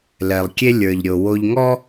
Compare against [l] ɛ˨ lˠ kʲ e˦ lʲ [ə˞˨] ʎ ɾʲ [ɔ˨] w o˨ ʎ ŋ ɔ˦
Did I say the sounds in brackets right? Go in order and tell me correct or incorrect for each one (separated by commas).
correct, correct, incorrect